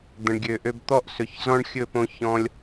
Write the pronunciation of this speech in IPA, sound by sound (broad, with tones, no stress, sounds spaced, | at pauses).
d̪ ə̃˨ ɳ ɡʲ ø˨ ʔ ø˧ b t̪ ɔ˦ ʔ s ɵ˨ ç z ɔ̃˦ ɳ xʲ ɵ˦˨ p õ˧ ç ɔ̃˧ lʲ